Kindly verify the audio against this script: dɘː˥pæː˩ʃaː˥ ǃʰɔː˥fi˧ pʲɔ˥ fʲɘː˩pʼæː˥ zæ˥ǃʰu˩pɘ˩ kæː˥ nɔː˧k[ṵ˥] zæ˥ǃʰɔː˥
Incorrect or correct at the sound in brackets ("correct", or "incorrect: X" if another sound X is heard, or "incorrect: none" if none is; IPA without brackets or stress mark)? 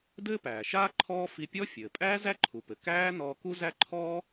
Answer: incorrect: u˥